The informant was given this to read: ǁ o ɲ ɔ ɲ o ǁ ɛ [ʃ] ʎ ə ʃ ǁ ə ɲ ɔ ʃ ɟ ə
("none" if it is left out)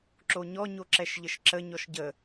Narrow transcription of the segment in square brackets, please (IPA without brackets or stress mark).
ʃ